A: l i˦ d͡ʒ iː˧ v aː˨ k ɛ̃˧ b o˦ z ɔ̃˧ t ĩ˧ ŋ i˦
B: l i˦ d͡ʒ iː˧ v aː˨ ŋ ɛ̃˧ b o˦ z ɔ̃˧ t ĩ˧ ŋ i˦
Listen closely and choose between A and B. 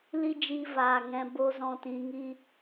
B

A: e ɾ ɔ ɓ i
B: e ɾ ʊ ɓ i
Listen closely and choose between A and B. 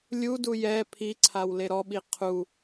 A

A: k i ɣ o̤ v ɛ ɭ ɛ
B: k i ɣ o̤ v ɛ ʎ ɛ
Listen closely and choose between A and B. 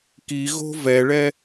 A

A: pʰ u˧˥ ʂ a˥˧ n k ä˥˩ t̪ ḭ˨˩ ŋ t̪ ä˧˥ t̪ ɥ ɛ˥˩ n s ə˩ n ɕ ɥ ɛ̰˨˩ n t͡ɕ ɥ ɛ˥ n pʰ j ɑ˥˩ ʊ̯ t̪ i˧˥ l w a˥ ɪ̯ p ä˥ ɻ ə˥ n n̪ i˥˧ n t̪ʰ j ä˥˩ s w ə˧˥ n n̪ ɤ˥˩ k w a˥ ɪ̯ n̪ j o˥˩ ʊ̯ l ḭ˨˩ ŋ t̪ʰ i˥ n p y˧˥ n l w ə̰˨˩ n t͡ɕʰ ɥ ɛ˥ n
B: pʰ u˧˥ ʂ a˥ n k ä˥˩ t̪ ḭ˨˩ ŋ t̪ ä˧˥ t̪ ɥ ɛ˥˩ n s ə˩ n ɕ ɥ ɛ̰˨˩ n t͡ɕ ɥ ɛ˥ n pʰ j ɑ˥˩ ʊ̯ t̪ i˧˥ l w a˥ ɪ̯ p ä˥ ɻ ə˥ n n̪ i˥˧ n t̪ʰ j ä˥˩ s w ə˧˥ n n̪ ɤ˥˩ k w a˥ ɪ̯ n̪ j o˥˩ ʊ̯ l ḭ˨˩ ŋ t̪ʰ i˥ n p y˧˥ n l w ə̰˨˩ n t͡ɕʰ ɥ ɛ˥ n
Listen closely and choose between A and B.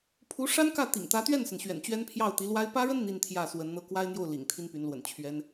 B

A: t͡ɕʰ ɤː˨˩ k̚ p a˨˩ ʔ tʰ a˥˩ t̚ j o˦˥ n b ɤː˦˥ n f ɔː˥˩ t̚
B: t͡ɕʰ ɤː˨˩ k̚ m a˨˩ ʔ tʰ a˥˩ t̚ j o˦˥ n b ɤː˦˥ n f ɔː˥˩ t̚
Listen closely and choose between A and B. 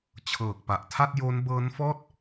A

